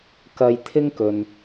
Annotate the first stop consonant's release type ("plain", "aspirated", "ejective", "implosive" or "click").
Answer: plain